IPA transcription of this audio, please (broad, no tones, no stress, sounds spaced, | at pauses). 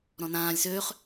ɾ ɔ̃ n ãː lʲ s øː χ